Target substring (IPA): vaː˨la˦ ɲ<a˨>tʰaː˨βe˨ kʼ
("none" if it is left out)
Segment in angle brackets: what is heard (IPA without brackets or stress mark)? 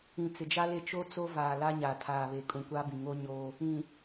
a˨